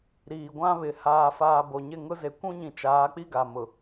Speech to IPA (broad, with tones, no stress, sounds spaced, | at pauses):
ɾ iː˨ ɡʷ ã˦ β ɪ˨ h aː˨ f aː˨ b o˨ ɲ ɪ˦˨ ŋ ʊ˦ z e˨ kʷ ũ˦ ɲ ĩ˨ t͡ʃ aː˨˦ k͡p i˦ ɡ a˨ m ʊ˨